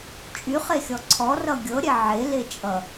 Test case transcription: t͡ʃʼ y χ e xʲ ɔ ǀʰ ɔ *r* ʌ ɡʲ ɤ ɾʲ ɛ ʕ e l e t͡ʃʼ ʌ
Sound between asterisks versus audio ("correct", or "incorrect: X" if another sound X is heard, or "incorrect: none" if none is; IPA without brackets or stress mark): correct